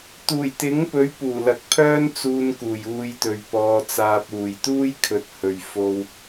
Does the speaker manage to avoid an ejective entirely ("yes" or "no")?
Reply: yes